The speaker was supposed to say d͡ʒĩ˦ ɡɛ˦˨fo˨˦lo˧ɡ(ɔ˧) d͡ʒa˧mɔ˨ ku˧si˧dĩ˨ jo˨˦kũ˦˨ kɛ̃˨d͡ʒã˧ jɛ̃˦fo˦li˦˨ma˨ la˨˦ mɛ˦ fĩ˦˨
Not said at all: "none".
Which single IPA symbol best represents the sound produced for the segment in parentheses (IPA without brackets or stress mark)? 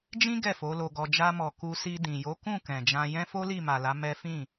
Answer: ɔ˧